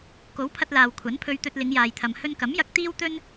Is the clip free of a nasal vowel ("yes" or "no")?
yes